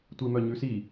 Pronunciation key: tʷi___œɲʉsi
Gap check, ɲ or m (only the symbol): m